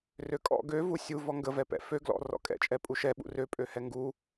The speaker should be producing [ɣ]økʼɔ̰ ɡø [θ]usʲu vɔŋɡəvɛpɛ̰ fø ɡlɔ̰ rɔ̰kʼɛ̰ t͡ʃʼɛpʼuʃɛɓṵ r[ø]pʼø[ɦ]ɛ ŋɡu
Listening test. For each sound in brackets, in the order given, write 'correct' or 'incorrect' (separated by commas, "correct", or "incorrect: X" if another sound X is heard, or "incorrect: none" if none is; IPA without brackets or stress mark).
incorrect: r, incorrect: v, correct, incorrect: h